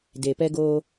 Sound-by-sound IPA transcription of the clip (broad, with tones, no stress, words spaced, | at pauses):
de˨pɛ˦ɡoː˦